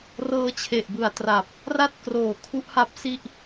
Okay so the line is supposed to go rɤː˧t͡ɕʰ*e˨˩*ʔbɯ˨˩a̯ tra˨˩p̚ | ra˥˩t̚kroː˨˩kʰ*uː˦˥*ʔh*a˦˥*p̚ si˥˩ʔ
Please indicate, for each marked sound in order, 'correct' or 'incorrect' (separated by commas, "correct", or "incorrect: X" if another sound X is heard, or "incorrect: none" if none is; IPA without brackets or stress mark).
correct, incorrect: u˦˥, correct